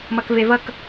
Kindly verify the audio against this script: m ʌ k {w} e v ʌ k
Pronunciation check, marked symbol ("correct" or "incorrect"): incorrect